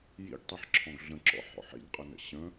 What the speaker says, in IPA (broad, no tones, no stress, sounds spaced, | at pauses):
j ḭ ɡ tˤ e ħ ǁʰ ɔ̃ ɡ ɮ ə̃ ǁ ɔ̰ ħ ɔ̰ ħ ḭ ɡ qʼ ə n ə̰ ɕ ə̃